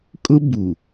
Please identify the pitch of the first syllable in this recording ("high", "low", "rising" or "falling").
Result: high